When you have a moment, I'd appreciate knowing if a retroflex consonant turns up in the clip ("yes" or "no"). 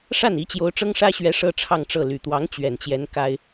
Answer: yes